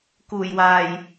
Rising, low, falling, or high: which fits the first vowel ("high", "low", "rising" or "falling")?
low